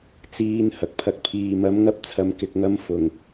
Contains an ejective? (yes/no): no